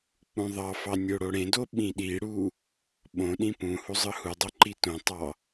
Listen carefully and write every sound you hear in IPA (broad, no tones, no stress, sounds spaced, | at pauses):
k͡p ũ ðˤ ɑ f ɑ nʲ o ɽ o ɽ ẽ d o ɓ ĩ ɗ i ɽ u | ɓ õ ɗ ĩ p ũ h u zˤ ɯ h u dˤ o ǃ i t õ tˤ ɑ